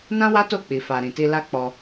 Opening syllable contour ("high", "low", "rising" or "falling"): high